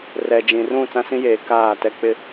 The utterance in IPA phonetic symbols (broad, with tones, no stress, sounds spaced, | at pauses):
r ɛ˨ d͡ʒ ĩ˨ r ũ˦˨ t͡s ã˦ s ĩ˦ j eː˨˦ k aː˦˨ t ɛ˦ k͡p ɪ˦